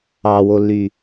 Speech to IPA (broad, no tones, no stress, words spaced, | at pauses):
ɑwolːy